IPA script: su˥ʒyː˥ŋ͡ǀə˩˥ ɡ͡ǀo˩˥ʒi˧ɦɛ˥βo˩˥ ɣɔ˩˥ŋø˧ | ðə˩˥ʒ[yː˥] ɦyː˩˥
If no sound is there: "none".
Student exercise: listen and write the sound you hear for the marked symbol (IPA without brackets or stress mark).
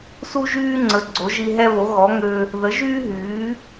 yː˥